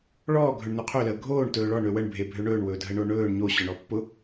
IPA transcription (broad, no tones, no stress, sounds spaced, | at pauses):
ɭ ɔː ɡʱ ɵ ɳ n o qʰ ø l əː ɡʱ oː ɳ t ɵː ɭ ɔ ɳ ø w ə ɳ bʱ e bʱ ø ɳ ɵː ɳ w ɵː dʱ ə ɳ o ɳ ɵː ɳ ɲ o ɕ ɔ ɳ ɔ pː ʊ